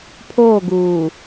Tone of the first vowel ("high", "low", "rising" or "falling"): falling